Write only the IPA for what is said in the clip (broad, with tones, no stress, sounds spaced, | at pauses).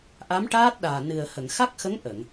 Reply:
ʔ a˧˥ m ʈ aː˦˥ t̚ ɗ aː˨˩ n ɨ˨˩ ə̯ h ə˨˩˨ ŋ x a˦˥ k̚ x ə˧˥ ŋ ʔ ə˨˩˨ ŋ